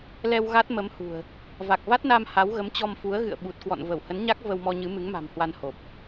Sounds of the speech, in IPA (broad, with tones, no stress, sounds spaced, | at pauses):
l ɛ˧ w ɣ a˦˥ t̚ m ə˨˦ m h ṳ˨˩ ə̯ | v a˨˩ k̚ v a˦˥ t̚ n a˧ m h a˨˦ w ɣ ə˨˦ m t͡ɕ ɔ˧ m f u˨˦ ə̯ ɣ ɨ̰˧˨ ə̯ ɓ u˨˩ t̚ k w ɔ̰˧˨ n v ə˧˩ w h ə˨˦ n ɲ a˦˥ k̚ v ə˧ w m ɔ˧ ɲ ɨ˨˦ m ɨ˨˦ ŋ m a̤˨˩ m h w a˧ n h o˨˩ p̚